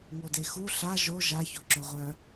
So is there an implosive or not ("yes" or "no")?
no